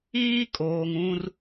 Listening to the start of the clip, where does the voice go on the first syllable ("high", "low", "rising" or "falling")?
high